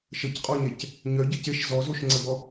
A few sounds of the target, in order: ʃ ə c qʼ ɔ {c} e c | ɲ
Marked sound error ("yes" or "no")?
yes